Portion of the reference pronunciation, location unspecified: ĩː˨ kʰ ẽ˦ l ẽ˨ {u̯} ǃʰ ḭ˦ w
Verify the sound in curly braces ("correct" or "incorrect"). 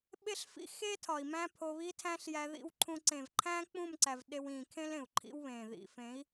correct